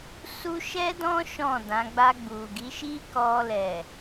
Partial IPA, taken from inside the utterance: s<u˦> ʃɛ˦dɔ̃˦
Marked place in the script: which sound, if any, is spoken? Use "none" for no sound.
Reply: u˦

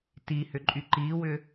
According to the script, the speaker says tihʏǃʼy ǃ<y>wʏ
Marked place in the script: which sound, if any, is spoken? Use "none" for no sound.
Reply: i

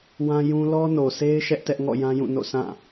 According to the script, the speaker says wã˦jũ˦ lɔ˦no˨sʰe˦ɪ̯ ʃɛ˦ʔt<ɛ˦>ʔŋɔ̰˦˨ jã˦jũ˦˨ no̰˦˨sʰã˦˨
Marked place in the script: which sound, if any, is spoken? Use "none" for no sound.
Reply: ɛ˦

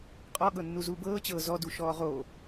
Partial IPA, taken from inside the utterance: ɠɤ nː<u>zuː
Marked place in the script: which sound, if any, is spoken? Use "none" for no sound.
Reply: u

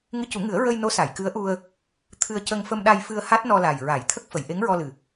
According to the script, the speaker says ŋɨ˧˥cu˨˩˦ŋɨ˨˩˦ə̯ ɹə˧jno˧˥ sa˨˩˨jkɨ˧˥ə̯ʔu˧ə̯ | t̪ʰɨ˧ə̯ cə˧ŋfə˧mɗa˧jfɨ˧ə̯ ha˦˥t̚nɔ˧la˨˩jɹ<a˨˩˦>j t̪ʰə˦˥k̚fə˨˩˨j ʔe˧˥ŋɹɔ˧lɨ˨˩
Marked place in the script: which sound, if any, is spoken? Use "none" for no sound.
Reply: a˨˩˦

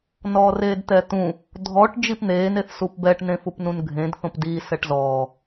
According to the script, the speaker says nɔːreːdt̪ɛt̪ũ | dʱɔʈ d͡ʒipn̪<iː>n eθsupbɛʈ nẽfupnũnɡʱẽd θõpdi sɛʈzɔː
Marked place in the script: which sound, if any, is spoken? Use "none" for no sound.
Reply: eː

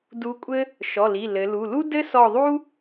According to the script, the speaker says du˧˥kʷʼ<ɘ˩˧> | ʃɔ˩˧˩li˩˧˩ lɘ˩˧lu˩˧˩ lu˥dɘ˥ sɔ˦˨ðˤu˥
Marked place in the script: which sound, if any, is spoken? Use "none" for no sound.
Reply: ɘ˥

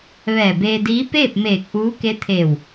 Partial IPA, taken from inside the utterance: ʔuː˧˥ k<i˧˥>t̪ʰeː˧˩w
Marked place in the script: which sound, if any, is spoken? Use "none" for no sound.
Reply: e˧˥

